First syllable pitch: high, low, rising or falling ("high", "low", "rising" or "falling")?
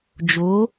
rising